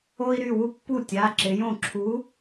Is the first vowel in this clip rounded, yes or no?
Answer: yes